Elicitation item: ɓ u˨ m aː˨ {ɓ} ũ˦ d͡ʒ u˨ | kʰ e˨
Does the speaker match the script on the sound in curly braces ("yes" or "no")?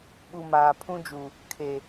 no